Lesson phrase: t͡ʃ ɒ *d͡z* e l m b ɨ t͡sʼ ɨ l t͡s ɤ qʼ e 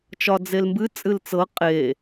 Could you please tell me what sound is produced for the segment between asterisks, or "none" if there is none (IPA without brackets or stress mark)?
d͡z